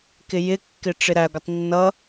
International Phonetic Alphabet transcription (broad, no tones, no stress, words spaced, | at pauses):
kɪjɪkːɪ ʈ͡ʂɪɾæɡʷətˤ nːʌ